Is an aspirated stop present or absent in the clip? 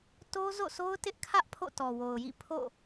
present